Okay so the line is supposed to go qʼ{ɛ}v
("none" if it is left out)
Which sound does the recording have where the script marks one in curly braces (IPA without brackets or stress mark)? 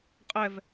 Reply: ɛ